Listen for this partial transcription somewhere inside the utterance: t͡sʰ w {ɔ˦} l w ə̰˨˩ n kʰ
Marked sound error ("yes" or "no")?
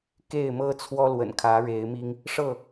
no